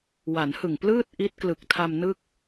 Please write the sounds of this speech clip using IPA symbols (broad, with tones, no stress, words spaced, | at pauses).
wa˩˦nhɯ˨˩ŋplɯː˥˩t̚ ʔi˦˥t̚klɯ˨˩k̚tʰa˧m nɯ˥˩k̚